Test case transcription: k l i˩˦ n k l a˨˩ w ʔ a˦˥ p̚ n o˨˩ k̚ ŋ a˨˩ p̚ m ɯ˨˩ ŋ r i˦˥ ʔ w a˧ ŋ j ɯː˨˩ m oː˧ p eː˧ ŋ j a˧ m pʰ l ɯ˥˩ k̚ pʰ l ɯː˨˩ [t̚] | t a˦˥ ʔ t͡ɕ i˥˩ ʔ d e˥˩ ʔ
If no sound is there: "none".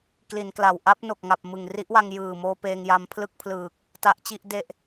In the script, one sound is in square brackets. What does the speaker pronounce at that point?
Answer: k̚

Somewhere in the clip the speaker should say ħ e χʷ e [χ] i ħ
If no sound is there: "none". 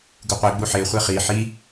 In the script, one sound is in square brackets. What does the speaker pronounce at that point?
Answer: χ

